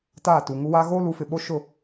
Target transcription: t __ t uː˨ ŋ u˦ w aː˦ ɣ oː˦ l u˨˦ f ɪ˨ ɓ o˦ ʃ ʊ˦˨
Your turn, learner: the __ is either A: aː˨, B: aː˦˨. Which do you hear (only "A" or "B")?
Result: B